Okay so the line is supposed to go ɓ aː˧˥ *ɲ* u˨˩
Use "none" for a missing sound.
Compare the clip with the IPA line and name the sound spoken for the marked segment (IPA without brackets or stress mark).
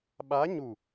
ɲ